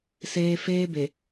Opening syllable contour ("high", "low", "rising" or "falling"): low